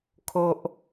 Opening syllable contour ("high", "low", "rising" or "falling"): low